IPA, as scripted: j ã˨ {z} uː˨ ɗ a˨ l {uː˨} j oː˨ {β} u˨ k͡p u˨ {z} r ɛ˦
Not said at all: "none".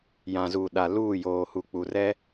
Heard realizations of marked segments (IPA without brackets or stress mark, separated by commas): z, uː˦˨, h, none